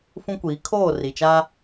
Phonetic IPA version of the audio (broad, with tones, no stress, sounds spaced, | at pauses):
f ũ˦ kʷ iː˨˦ kʰ oː˦˨ r i˨ t͡ʃ a˦